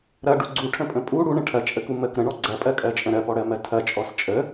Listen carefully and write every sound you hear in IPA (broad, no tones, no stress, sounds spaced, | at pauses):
ɾ ɐ ɖ u ɡ͡ǀ u ʈʰ ə̃ pʼ ə̃ pʼ u ɽ u ɳ ə̃ ʈʰ ɐ t͡ʃʼ ə k u m ə k ɾ ə̃ ɳ ɔ ɡ͡ǀ ɐ pʼ ɜ kʼ ɜ t͡ʃʼ ə̃ ɾ ɜ p ɔ ɽ ɜ m ɜ tʰ ɐ t͡ʃʼ ɔ s t͡ʃʼ ə